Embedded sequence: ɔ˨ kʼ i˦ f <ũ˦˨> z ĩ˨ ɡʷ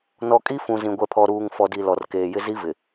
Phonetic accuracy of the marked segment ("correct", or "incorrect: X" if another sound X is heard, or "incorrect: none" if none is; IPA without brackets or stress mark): incorrect: ũ˨